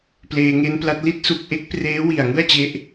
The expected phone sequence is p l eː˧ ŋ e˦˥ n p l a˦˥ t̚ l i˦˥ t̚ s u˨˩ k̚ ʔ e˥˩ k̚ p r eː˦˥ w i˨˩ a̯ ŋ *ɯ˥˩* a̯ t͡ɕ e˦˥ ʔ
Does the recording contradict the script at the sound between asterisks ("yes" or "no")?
no